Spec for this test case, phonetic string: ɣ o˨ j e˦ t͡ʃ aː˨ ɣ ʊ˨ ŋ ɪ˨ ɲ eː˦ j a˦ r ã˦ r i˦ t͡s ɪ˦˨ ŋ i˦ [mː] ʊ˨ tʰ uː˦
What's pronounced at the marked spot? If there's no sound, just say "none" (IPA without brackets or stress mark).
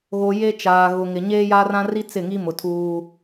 m